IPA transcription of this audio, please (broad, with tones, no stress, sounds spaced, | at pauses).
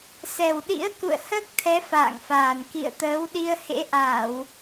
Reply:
s ɛ˨˩ w ɗ ḭ˧˥ ə̯ k ṵ˧˨ ə̯ h əː˦˥ k̚ t̪ʰ ɛ˨˦ f a̰ː˧˨ ŋ f aː˨˩ n k ḭ˧˨ ə̯ t̪ əː˨˦ w ɗ i˧ ə̯ h ḛ˧˥ ʔ aː˧˩˨ w